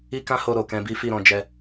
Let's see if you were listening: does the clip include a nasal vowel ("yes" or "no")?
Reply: yes